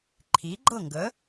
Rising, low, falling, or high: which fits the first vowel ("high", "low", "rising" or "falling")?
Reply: rising